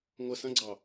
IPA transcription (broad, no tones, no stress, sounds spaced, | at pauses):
ŋʷ ə s ɐ̃ ɡ͡ǀ ɑ